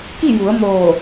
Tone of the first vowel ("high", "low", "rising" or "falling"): falling